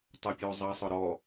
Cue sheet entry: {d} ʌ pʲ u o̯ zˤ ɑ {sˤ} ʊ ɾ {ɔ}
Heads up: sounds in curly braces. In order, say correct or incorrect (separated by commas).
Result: incorrect, correct, correct